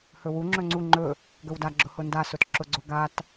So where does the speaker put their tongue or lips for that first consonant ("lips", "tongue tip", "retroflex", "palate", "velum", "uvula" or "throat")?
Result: throat